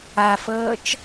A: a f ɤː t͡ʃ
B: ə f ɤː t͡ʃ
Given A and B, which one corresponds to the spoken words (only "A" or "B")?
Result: A